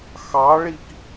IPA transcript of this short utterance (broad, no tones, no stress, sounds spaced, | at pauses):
x ɑ ɭ i k